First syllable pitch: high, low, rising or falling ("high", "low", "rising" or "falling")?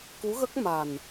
rising